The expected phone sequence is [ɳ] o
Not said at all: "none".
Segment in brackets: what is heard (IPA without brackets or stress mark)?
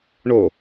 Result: ɳ